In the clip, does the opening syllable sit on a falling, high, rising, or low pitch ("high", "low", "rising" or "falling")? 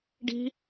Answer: high